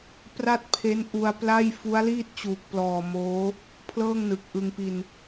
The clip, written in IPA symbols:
p r a˥˩ t̚ pʰ e˦˥ n ʔ u˧ a̯ p l a˥˩ j f u˦˥ a̯ l iː˥˩ t̚ t͡ɕ uː˨˩ k̚ p l ɔː˨˩ m oː˦˥ | pʰ l ɤː˥˩ ŋ n ɯ˨˩ k̚ ʔ ɯ˧ ŋ p i˧ n

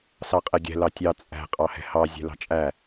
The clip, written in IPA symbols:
s ɑ qʼ ɛ ɡʲ ɛ̤ l ɑ tʲ ɑ t͡sʼ æ̤ qʼ ɑ h ɛ̤ h ɑ zʲ ɛ̤ l ɑ̤ t͡ʃʼ æ

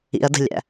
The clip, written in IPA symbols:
ḭ ɐ̯ d ə̤ lʲ æ̰

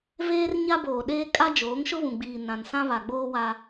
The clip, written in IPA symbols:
v eː˦ r ɲ a˦ b oː˨ ɗ eː˦ kʼ a˦ d͡ʒ oː˨˦ ŋ ʃ ʊ˦ β ũ˨ ɡ͡b iː˨ n ã˨ n s ã˦ β a˨ ɡ͡b oː˦ w a˦

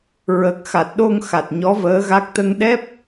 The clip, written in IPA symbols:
ɹ ə˨˩ k̚ x a˨˩ t̚ ɗ o˧ ŋ x a˨˩ t̚ ɲ ɔ˧˥ v əː˧˥ ɣ a˦˥ k̚ t̪ ə˧ ŋ ɗ ɛ˦˥ p̚

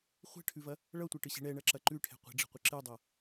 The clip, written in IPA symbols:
χʷ ɛ̤ ʈʰ ʉ v ɐ | ɭ ʌ tʷ ɛ ʈ ɨ ɕ i̤ ɳ ɛ ɳ ɐ ǁ ɐ ǃ ʉ ʈʰ ɛ̤ qʷ ə̤ ɖ͡ʐ ə̤ qʷ ə ǁ ɨ dˤ ʌ

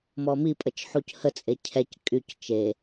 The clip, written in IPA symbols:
m ɔ m i pʼ ə t͡ʃ ħ u c h ə t͡sʼ e cʰ ɛ c kʼ y c t͡ʃ e

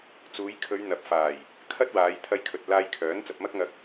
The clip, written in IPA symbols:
t͡s uː˨˧ j kʰ ɵ˨˧ ɥ n̪ ɐ˨˥ p̚ f aː˨˩ j | kʰ ɐ˥ t̚ w aː˨˧ j t̪ʰ ɐ˧ j kʰ ɵ˨ t̚ l aː˧ j kʰ œː˨˥ n t͡s ɐ˨ p̚ m ɐ˥ k̚ ŋ ɐ˧ k̚

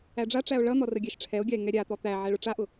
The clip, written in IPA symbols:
æ ɖ͡ʐ a ʈ͡ʂ æ o̯ ɭ ʌ n̪ ɔ r ə ɡʲ æ ʃ ʈ͡ʂʰ ɛ o̯ ɡʲ a e̯ ŋ ɛ ɾʲ a t̪ ɔ t̪ æ ʕ ɛ ɭ ʊ ʈ͡ʂ a ʔ ʊ

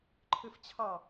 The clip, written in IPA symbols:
ǃʰ ɯ f t͡ɕʰ ɑ

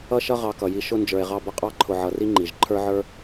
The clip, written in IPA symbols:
ʌ˥ ʃ ʌ˥ ʁ ɑ˦ k ʌ˨ j i˦ ʃ ʊ˥ n d͡ʒ ə˞˨ e̯ ʁ ɑ˦ b ʌ˦ qʼ ɑ˥ ǃʰ ʊ˨ ʕ ʌ˨ r i˦ ŋ͡ǃ i˩ ʒ ǃʰ ə˞˥ ʕ ə˞˥

